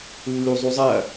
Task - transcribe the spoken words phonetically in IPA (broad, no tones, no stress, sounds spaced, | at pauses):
lː u zˤ u zˤ ɐ